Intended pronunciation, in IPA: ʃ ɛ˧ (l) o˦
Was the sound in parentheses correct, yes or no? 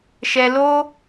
yes